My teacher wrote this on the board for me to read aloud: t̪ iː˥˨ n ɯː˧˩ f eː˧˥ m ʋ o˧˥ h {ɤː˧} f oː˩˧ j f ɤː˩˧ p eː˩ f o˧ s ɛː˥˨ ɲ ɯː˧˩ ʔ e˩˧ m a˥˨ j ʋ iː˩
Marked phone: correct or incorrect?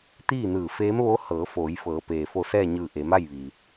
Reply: incorrect: ɤː˩˧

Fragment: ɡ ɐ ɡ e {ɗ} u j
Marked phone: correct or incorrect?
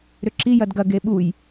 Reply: incorrect: ɓ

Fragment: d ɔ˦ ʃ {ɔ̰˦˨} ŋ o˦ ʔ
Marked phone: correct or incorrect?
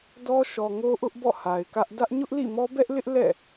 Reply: incorrect: ɔ˨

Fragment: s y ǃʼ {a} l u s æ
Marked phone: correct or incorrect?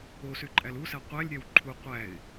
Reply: incorrect: æ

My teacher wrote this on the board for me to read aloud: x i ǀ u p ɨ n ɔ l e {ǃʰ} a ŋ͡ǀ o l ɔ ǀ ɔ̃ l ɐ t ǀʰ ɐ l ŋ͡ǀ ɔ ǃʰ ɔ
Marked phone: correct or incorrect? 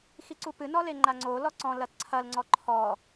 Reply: incorrect: ŋ͡ǃ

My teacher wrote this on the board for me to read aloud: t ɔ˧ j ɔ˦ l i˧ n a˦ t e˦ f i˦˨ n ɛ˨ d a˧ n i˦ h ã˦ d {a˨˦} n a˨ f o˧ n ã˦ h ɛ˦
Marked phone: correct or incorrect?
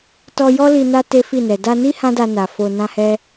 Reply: incorrect: a˧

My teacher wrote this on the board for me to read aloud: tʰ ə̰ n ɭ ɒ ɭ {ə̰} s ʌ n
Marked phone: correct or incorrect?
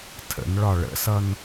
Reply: correct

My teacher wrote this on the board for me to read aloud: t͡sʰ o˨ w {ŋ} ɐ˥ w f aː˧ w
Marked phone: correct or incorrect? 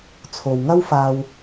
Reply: correct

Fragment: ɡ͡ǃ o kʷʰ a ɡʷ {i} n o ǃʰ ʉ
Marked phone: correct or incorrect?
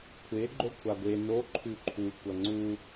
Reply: incorrect: e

